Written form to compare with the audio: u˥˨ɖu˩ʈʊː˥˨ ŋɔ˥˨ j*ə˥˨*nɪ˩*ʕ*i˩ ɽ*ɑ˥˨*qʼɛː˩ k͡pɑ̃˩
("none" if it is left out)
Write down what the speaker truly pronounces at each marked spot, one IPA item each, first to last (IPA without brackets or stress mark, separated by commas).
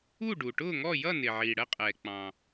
ʌ˥˨, ʕ, ə˥˨